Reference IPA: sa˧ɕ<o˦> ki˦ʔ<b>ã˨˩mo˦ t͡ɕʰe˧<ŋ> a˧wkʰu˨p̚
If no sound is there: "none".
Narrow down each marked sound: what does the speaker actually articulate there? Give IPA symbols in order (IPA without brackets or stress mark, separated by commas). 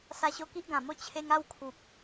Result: o˧, ɡ, ŋ